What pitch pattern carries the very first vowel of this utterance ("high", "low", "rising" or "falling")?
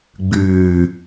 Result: low